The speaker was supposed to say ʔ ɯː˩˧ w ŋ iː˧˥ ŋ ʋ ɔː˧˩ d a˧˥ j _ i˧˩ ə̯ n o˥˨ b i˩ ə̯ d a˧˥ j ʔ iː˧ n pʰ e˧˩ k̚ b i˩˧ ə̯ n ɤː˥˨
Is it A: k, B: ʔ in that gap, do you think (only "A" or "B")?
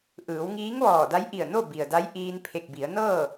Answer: B